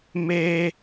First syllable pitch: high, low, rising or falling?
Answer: high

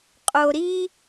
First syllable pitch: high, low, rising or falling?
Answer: low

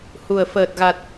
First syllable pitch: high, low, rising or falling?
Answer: low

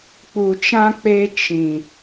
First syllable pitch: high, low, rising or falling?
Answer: low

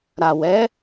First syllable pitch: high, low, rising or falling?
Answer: low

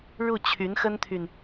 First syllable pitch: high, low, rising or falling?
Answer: falling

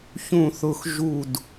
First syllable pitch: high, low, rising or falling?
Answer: falling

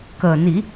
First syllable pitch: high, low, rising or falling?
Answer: low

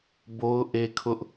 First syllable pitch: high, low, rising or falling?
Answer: high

